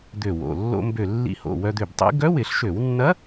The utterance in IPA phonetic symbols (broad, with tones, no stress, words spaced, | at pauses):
d̪ø˧˩wo̰˩˧˩ lːo̰˧ mbø˧˩ lːḭ˧ho̰˩˧˩ wœ˧d̪ø˧˩btˤḭ˧˥ ɡœ˧˥wɪ˧˩˧ɬʃø˧˩˧wnːɐ˧˥